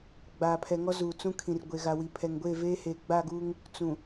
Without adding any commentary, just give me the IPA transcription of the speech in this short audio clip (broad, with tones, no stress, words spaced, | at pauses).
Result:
ɡ͡baː˨pʰɛ˨ŋɔ˦ zuː˨t͡sũ˦kʰĩ˨r ɡʷe˨ɣa˨wi˨ pʰɛ˨ŋɡʷeː˦˨veː˦heː˨ ɡ͡ba˦˨ɡuː˦ŋ | t͡sũ˨